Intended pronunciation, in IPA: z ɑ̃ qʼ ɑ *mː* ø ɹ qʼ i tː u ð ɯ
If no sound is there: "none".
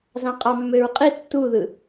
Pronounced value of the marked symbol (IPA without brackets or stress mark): mː